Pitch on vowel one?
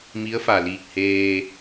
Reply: rising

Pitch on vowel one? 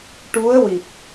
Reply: rising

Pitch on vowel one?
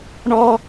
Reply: high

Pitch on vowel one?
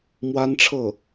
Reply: high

